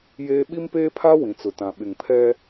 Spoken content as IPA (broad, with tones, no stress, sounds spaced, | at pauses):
j eː˦ ɓ i˦ m p eː˦ pʰ a˦ w ĩ˨ t͡s ʊ˨ t ã˨ ɓ ɪ˨ ŋ pʰ ɛ˦